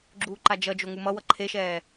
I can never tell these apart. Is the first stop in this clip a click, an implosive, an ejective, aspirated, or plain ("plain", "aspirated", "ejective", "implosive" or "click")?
click